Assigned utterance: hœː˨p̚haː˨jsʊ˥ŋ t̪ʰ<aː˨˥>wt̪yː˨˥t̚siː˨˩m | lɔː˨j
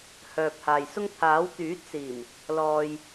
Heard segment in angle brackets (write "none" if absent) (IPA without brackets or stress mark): aː˨˥